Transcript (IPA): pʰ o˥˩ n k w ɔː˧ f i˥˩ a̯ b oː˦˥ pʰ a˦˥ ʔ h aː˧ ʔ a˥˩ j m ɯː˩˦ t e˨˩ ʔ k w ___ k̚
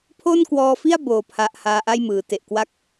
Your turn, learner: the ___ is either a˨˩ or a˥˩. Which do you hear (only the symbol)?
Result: a˥˩